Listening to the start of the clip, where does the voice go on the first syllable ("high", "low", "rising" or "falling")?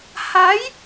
rising